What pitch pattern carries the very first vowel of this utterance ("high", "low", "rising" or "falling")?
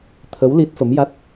rising